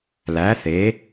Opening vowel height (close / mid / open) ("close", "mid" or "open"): open